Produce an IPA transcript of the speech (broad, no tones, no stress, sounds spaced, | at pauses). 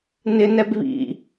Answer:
n ɪ n ɛ b β ḭ